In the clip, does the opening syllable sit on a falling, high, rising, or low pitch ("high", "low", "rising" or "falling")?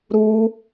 high